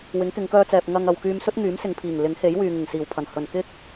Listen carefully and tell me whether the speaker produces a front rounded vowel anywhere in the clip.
yes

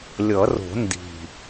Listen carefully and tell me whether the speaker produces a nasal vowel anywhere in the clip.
no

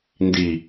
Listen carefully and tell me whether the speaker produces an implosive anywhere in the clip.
no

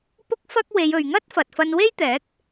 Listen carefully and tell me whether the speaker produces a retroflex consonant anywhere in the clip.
no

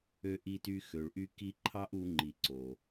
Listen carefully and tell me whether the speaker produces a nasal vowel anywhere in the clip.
no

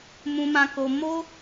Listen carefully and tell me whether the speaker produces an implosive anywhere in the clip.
no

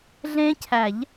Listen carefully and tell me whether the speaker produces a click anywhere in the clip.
no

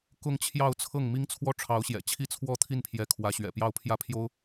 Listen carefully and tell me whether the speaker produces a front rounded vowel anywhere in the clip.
no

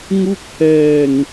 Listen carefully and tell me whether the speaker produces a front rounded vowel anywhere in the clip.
no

